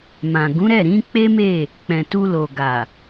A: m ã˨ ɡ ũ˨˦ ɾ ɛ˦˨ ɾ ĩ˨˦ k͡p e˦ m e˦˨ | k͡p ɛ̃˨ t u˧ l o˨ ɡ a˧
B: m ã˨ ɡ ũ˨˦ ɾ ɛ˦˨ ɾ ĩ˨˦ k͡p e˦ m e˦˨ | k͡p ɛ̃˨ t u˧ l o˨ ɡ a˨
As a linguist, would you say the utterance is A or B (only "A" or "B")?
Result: B